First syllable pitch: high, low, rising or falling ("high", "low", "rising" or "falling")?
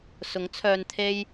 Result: rising